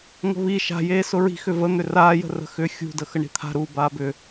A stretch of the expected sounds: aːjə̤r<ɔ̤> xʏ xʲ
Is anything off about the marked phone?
yes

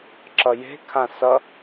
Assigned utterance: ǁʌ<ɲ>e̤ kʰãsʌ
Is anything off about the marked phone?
yes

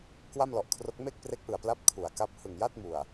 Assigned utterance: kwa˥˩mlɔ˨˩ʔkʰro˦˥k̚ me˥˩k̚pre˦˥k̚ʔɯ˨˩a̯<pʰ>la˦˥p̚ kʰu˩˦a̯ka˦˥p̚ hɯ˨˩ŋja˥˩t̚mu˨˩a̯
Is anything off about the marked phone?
yes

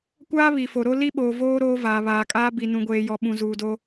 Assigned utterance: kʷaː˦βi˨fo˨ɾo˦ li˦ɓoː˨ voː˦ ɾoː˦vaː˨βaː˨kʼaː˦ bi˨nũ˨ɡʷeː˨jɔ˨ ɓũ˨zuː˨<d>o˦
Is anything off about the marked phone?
no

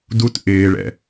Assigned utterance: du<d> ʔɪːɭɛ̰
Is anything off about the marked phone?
yes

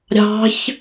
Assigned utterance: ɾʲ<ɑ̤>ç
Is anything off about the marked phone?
no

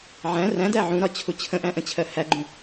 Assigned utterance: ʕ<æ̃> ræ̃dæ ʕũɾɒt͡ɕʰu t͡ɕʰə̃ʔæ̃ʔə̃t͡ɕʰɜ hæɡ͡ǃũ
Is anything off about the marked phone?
no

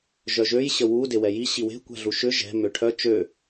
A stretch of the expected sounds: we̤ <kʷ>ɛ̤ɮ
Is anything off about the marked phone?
no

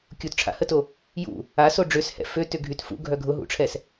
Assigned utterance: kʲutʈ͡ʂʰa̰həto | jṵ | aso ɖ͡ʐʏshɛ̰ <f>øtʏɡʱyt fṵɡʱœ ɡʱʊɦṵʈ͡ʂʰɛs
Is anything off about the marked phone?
no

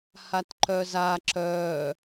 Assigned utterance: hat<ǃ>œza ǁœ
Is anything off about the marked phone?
no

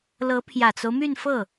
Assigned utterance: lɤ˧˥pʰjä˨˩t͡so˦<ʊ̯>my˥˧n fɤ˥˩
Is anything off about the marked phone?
no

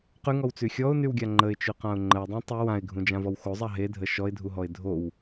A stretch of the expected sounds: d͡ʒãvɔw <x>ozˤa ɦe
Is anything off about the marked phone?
no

